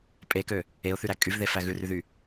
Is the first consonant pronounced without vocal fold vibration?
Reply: yes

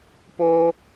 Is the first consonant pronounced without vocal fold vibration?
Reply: yes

